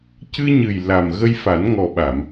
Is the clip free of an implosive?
no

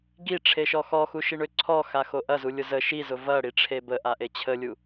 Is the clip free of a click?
no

